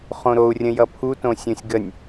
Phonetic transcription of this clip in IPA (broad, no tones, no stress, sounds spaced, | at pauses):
χ õ ɾ o u̯ rʲ ə̃ j ʌ pʰ u t õ sʲ õ sʲ ɡ ə nʲ